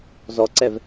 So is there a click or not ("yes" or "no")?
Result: yes